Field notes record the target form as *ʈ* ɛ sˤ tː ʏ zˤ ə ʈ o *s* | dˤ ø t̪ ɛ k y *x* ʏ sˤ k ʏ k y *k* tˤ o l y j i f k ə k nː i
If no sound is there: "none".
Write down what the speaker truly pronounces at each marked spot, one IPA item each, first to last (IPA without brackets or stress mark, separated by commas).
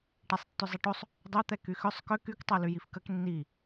ʈ, sˤ, x, k